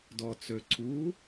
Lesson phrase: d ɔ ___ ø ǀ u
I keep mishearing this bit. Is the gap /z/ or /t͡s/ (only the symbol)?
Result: t͡s